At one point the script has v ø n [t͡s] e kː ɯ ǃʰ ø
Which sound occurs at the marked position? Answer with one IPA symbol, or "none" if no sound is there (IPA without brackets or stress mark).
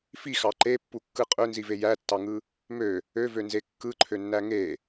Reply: z